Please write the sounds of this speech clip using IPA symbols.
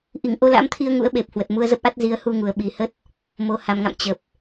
ʔi˧˩ŋʔo˧la̰˧˥mt̪ʰi˧ə̯ ŋṵ˧˥ə̯ɓe˨˩p̚ hwə˨˩t̚mu˧ə̯zə˦˥p̚ʔa˦˥t̚ zi˨˦ə̯hu˧ŋu˨˩ə̯ ɓi˨˩hə˦˥t̚ | mo˨˩ ha˨˩mŋa̰˧˨m t͡ɕə˨˩p̚

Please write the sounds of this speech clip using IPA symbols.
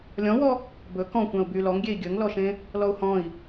lʲɔ̃wɔ | bɵ kɔ̃kʷæ̃u̯ by lɔŋɡʲei̯ ɡʲɵŋlɔʃẽ | lɔu̯hɔ̃i̯

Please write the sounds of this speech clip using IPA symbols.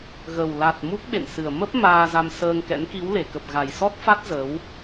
ɣə˨˩w la˨˩t̚ mu˦˥k̚ɓḛ˧˨nsɨ˨˩ə̯ mə˦˥p̚ maː˧za˧msəː˧ŋkɛ̰˧˥n ki˨˦wle˧˩kə˨˩p̚ ɣa˨˩jsɔ˦˥t̚fa˦˥t̚ zə˨˦w

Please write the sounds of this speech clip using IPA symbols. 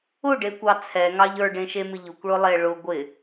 ʊɖekʷɑ t͡sʰɛŋɑʎ ə˞ɖẽʃemɪ ʎʊkʷɭʊlˠe ɭʊ ɡʷɪ

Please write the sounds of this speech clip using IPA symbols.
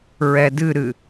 ɹɛdɨɾɨ

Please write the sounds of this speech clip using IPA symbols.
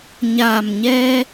ɲa˨˩mɲɛ˧

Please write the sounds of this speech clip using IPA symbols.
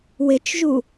wɪt͡ʃʒu

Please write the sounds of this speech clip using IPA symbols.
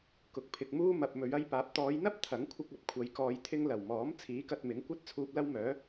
kʊ˨k̚pʰɪ˨k̚muː˥mɐ˨p̚ mɵ˨˧ɥɐ˥jpaː˨˥p̚ t̪ɔː˨˧jn̪ɐ˥p̚ t̪ʰɐ˨˥ŋkʷʰɪ˧k̚ ɐ˧p̚kʷʰɐ˨˧j kɔː˧jt̪ʰɪ˥ŋ lɐ˨˩wmɔː˨˥m t͡sʰiː˨˥kɐ˧t̚mɪ˨˥ŋ kʷɐ˥t̚ t͡sʰuː˧p̚lɐ˥wmœː˨˥

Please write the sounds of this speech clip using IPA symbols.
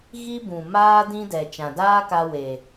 ɣi˦bũ˨ maː˦ dĩ˦dɛ˨ t͡ʃã˨daː˦ka˧ we˨

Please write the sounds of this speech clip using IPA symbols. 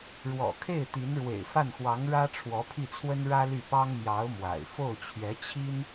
ɻwɔ̰˨˩kʰe˥˩ɪ̯ t̪i˧˥nɻwḛ˨˩ɪ̯ fa˥˩nxwɑ˧˥ŋ ɻä˥ʈ͡ʂʰwɔ˧˥pʰi˥˩t͡sʰwə˥n ɻä˥ly˥˩pɑ˥ŋ mjɑ˧˥ʊ̯ mwa̰˨˩ɪ̯ fo˥˩ʊ̯t͡ɕʰɥɛ˧˥t͡ɕʰi˥n

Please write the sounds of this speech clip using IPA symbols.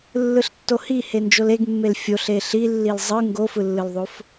lːɯɬtːohi hend͡ʒoleɡmːel fʲoɬ eɬilːil zˤɯ ŋɡofɯlːɯlðˤof

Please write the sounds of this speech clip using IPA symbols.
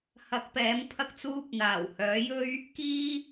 hɐ˨˥k̚pɛː˨˥m pʰɐ˥k̚t͡suː˥p̚ n̪aː˨˩whœː˨˥jɵ˥ɥ | kiː˥

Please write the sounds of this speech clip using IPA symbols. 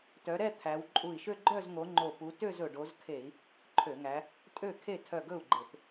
tœ˨˦ɾɛ˥˧ t̪ʰæ˨˦w ǃʼu˧˩i̯ʃø˥˧ ɡ͡ǃœ˥˧zŋo˨˦ ŋ͡ǃo˧˩pu˨˦ tø˥˧zɵ˩ɖo˨˦zkʰe˧˩˧i̯ | ǃʰø˧˩˧ŋæ˨˦ | tʼø˥˩kʰe˥˩ tʰœ˧˩ɡɵ˥˩u̯ ɡ͡ǃe˧˩˧p

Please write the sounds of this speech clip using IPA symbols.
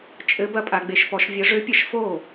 t͡ʃʼɘ˧˥bɐ˧˥pʼa˩˧ ɡ͡be˩˧ʃpɔ˩˧ʃvʲɐ˧˥ ʐø˧˥ pʲɐ˧˥ʃ fo˥˩

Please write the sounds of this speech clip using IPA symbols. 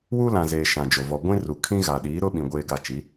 wu˦lã˨zeː˨ ʃã˨d͡ʒo˨ vɔ˨ɡʷĩ˦ ru˨kʰĩ˦ɣa˨ ɗiː˨˦ɾʊ˦ ɓĩ˨ ɡʷeː˦ɡa˦˨ t͡ʃi˨˦

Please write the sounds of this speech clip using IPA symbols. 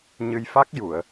ɲɨ˧jfa˦˥k̚ju˨˩˨ə̯

